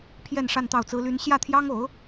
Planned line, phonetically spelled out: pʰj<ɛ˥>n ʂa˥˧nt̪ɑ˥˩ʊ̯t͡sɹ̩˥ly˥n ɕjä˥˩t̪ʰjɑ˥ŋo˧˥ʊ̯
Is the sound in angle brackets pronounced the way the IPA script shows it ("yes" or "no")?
no